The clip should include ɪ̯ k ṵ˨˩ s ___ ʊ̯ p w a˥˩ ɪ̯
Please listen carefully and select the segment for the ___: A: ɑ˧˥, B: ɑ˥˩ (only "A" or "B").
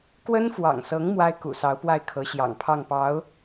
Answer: A